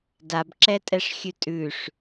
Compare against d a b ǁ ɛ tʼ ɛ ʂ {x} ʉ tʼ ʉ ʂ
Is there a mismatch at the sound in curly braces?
yes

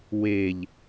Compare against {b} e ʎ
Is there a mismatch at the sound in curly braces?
yes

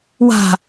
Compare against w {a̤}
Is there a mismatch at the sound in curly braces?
no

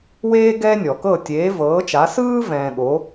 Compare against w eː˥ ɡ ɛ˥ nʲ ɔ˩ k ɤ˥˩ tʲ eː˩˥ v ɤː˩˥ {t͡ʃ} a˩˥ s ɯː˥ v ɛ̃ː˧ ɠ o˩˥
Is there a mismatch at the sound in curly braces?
no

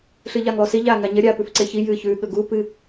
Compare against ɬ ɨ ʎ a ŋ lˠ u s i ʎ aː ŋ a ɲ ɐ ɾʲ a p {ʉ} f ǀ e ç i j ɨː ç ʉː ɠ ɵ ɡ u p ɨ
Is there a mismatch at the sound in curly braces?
no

